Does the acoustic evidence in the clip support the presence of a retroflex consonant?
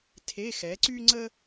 no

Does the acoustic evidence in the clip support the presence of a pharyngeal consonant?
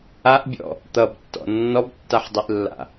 yes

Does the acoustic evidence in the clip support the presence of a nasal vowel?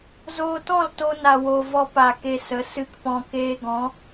yes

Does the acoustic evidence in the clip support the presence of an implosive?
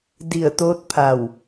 no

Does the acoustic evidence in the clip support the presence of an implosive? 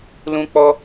no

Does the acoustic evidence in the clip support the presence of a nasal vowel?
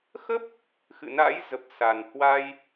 no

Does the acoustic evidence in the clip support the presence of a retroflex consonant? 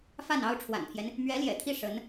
yes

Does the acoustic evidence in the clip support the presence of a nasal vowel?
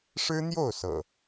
no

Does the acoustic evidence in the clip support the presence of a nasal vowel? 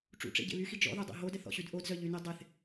no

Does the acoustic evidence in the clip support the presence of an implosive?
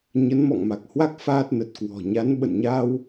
yes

